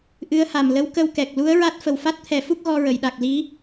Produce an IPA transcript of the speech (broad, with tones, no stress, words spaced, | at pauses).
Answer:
ʔɨ˧˥ə̯ha˨˩m lə˧˥wkə˧wkɛ˨˩k̚ lu˧˥ə̯ɹa˦˥t̚ fə˨˩wfa˦˥t̚t̪ʰɛ˨˩˦fu˦˥k̚ ɣɔ˧ɹə˨˩˨jɗa˨˩k̚ li˧˥